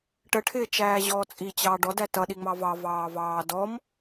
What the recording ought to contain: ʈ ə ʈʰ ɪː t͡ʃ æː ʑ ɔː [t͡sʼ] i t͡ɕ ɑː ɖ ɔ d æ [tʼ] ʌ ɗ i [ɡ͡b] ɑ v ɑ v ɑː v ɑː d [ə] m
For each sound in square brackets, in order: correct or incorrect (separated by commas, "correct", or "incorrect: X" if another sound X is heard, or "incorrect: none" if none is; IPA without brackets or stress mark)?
correct, incorrect: t, incorrect: ŋ͡m, incorrect: ɔ